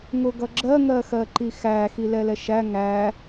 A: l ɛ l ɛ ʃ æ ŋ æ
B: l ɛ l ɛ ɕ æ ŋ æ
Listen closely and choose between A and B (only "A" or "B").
A